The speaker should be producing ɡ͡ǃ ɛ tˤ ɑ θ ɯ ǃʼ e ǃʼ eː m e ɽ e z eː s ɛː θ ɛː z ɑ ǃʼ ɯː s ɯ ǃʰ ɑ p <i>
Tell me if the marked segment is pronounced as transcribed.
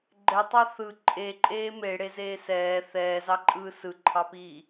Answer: no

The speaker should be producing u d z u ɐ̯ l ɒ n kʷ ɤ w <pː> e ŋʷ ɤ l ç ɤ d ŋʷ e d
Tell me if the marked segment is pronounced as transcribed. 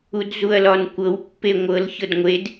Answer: yes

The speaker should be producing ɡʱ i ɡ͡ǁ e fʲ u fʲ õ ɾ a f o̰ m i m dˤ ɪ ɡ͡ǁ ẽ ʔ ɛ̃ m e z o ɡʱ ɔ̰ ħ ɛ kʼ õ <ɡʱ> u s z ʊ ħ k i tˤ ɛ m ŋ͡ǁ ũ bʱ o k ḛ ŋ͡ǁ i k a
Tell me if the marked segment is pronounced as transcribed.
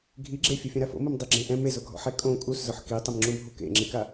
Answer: no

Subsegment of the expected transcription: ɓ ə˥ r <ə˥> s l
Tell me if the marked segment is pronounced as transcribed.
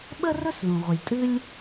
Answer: no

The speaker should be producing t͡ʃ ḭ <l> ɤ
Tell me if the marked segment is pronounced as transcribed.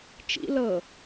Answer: yes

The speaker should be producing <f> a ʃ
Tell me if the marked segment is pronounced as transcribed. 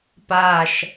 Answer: no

